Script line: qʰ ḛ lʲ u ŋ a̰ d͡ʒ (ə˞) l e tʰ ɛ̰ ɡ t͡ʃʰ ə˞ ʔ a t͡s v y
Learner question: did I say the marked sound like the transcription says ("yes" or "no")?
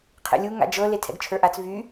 no